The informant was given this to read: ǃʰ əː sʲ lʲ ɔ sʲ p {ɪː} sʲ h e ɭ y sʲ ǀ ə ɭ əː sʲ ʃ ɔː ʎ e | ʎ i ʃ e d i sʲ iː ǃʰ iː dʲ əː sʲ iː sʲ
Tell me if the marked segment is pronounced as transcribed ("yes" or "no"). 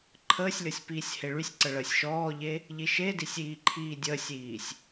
no